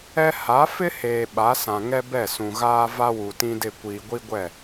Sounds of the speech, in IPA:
ɛ˦ ha˨˦fɪ˦heː˨ ɓa˨˦sã˨ ŋɛ˦bɛ˦˨sũ˨ɣaː˦ va˦wu˨tĩ˦dɪ˦˨ kʷiː˨ɡʷi˦ɡʷɛ˦˨

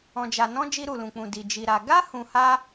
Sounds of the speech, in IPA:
ɔ̃˧d͡ʒa˧nɔ̃˦ d͡ʒi˧ɾu˨lũ˨k͡pũ˨ di˨ d͡ʒi˧ɾa˧ ɡa˦ hũ˧ha˦

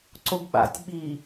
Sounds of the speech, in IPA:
ǀoɡɓa̰tʲ ɓi

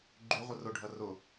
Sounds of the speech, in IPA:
ɡ͡ǃyʁʷə rʊɖʱɐ rʊ

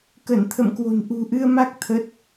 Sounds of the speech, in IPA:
kə˧˩nt̪ʰə̰˧˨mkwo̤˨˩n ʔṳ˨˩ʔɨ˧ə̯ma˦˥k̚ t̪ʰə˦˥t̚

